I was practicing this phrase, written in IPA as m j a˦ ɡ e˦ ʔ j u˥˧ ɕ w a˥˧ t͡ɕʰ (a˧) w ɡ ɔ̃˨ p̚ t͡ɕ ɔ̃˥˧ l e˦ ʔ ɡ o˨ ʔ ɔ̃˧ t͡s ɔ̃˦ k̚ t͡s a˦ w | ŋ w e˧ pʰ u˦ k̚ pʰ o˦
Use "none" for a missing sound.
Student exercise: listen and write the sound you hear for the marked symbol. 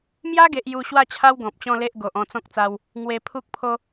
a˦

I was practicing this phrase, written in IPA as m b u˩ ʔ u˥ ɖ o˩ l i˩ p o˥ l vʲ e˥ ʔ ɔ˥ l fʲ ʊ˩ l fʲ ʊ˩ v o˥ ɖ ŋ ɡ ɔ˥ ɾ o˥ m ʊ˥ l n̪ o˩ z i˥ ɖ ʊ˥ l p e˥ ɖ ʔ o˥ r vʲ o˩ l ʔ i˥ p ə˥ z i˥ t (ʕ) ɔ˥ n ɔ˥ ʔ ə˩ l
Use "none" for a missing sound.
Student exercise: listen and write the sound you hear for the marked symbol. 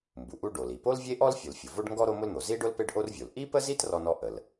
r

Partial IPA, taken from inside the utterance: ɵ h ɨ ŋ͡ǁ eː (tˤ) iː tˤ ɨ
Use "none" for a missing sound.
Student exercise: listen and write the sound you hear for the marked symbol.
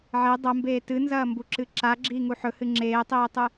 tˤ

